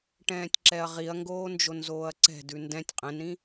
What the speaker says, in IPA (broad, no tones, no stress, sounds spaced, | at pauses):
ʈ ɛ̃ː tʲ ǁ ɛ ɐ̯ ʁ i ɐ̯ ŋ ɡ oː n d͡ʒ o n z oː ɐ̯ ǀ ɛ̤ d ʉ n d ɛ̃ tʲ qʼ ɛ̃ n ɾ ĩ